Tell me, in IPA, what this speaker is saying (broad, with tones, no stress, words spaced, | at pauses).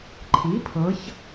ǃʰi˩˥pʰɤ˩˧ç